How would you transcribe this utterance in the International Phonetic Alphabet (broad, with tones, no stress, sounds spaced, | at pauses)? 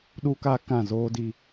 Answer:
ɗ u˦ k aː˦ k ã˦˨ z oː˦ d i˦